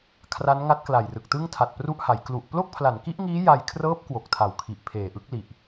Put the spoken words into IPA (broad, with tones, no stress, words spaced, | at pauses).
kʰra˦˥nŋa˦˥t̚kla˨˩jrɯ˨˩k̚ tɯ˥˩ŋtʰa˨˩t̚pru˥˩ʔha˩˦j klu˨˩ʔ plo˥˩k̚pʰla˩˦nki˦˥ʔŋiː˦˥ ja˧jkʰrɤː˦˥p̚ kwo˨˩k̚tʰa˨˩w kʰi˨˩ʔpʰeː˨˩ʔɯ˦˥k̚li˨˩ʔ